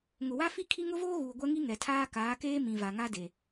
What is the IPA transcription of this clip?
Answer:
ŋ ʊ˨ w a˦ f i˦ kʰ i˦ ŋ ʊ˦ v oː˦ ɣ uː˨ ɡʷ ɛ˦ ŋ i˦ ŋ ɛ˨ tʰ aː˦ k aː˨˦ k eː˦ m ĩ˨ v a˨ ŋ a˦ d e˨

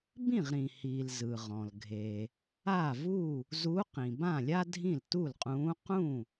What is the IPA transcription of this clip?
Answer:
b ĩ˥˩ ʁ ɾ ĩ˩ h iː˩ l z ɯ˩ ʁ ɔ̃˩ l ɡʱ e˩ | a˥˩ v u˥˩ | z u˧˥ q ĩ˩ b ã˥˩ lʲ a˥ dʱ ĩ˥˩ l t u˥˩ l qʼ ũː˧˥ q ũ˥˩

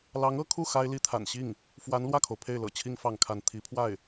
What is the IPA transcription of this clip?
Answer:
l ɑ˧˥ ŋ ɤ˧˥ kʰ u˥˩ x a˥ ɪ̯ l i˥ t̪ʰ a̰˨˩ n ɕ i˥˩ ŋ | f w a˧˥ n l w ä˥˩ kʰ o˩ ʊ̯ pʰ e˥˩ ɪ̯ l ɤ̰˨˩ t͡ɕʰ i˥ ŋ f ɑ˥˧ ŋ kʰ a˥˩ n t̪ʰ i˧˥ pʰ w a˥˩ ɪ̯

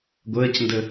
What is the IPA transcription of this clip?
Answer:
ɡʷ əː c n d ə

